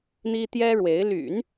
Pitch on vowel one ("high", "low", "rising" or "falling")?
high